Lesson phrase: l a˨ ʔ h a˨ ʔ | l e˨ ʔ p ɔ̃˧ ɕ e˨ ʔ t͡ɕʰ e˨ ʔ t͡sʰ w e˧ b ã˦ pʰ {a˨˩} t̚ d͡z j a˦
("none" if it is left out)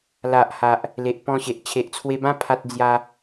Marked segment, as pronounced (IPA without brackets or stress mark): a˦